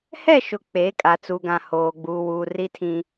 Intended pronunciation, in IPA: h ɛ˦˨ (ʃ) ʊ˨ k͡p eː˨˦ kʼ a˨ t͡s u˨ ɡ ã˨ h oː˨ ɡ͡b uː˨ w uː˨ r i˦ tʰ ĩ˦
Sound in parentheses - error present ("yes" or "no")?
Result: no